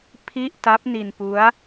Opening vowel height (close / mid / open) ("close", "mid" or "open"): close